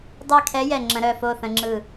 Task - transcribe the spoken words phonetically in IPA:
dˤɛ˧˩kʰɛ˨˦ jɛ˧˩ŋ͡ǁə̃˨˦ɾœ˧˩ fo˧˩θə̃˨˦ŋ͡ǁɯ˧˩

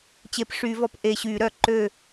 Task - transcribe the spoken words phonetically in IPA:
t͡ɕe˧˩pʂy˧˩˧vɔ˧˩p ʔe˧˩ɕy˧˩˧ɾœ˧˩˧ ǃø˧˩

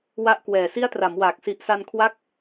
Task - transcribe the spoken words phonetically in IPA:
wa˦˥ʔkwɛː˨˩ si˦˥a̯ tra˩˦mwaː˨˩k̚ si˨˩ʔsa˧nkʰwa˦˥k̚

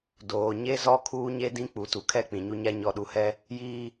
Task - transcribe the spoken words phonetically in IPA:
doː˨ɲe˦zɔ˦ kʰuː˦ɲe˦dĩ˦ k͡pu˨˦tu˨kʰɛ˦ k͡pĩ˨ɲu˦ɲa˦ ɲɔ˨ɗu˨hɛ˦ | jiː˦

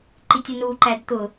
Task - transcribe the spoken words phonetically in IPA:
ǃitʲənuǃæd t̪ʊ

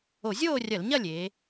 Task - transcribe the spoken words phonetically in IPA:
o˧˩˧zʲoː˥˨rʲɐ˧˩˧l ɲɐ˥˨lʲeː˩˧

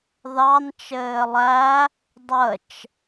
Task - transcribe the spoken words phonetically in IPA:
ðɑn t͡ʃɘːlˠæ | dˤət͡ʃ

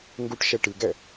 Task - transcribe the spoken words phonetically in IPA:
ŋɡuʈʃɛ ʈɨɡɛ

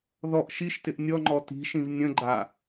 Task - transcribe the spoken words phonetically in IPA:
ðɔʔ ʃiʃtɪʔ nʲɔŋ͡ǃɔ ti̤ʃĩv nʲə̃ɡ͡ǃa

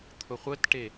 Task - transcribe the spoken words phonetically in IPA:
t̪ʰʊχʷətʈe

